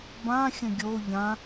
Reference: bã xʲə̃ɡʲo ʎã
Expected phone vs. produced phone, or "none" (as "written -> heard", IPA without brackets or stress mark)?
none